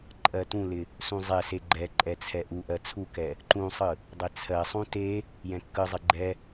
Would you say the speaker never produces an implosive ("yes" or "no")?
yes